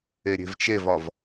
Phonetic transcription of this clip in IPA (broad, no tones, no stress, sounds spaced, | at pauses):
e ɾʲ e̤ v t͡ʃ e v ɒ v